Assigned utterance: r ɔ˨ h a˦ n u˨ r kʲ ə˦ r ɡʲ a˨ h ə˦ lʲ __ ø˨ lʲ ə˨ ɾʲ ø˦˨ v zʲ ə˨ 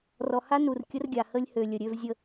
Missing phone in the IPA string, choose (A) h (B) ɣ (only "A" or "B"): A